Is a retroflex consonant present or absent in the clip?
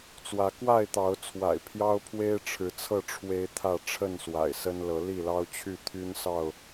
present